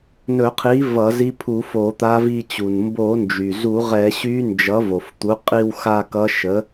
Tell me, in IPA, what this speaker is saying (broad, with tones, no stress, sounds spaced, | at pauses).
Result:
n ɵ˧˩˧ qʰ i˩˥ v ʌ˧˩˧ z i˧˥ pʰ u˧˩˧ f o˧˩˧ t̪ a˧˥ v i˦˨ t͡ɕ u˩ n m b o˧˩˧ n d͡ʒ y˩ z u˧˩˧ ʁ ɛ˧˩˧ ɕ y˧˥ n d͡ʒ ʌ˩˥ v o˩ f t̪ u˩˥ qʼ i˦˨ w x a˦˨ k ʌ˧˥ ʃ ə˩˥